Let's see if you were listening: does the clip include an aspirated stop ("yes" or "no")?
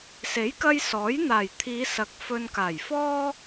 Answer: yes